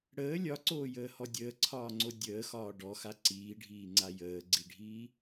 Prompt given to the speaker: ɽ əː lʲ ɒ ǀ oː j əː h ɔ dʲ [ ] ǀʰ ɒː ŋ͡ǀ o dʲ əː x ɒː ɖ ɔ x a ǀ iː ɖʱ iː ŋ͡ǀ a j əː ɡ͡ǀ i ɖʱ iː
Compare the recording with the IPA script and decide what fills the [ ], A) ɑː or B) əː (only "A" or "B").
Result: B